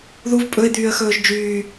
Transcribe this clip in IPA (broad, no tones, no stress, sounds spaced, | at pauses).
ð u v pʼ ɵ ɪ̯ d̪ yː ə̯ x ɵː ʒ d͡ʒ yː